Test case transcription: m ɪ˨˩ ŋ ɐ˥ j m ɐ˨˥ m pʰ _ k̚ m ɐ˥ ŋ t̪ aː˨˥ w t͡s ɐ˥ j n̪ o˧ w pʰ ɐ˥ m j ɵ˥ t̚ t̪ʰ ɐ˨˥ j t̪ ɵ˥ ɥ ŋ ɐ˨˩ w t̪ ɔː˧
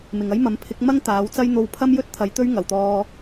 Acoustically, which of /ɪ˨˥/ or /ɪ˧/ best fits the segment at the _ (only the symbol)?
ɪ˨˥